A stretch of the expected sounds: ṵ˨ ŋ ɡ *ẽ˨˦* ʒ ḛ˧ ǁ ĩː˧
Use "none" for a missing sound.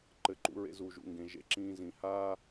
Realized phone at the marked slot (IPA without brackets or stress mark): ẽ˨